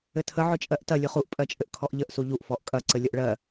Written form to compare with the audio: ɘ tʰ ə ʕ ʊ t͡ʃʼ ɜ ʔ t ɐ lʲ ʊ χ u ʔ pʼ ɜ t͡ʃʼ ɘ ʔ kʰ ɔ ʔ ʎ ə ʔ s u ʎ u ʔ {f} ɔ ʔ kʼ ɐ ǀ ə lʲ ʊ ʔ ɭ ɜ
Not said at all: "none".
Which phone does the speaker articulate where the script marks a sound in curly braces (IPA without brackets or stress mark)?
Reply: f